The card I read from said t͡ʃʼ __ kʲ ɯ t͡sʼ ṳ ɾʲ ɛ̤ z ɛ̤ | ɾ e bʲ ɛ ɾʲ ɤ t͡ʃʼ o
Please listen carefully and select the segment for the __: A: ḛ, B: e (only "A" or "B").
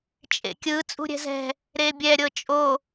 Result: A